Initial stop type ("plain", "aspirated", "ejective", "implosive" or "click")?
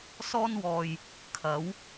aspirated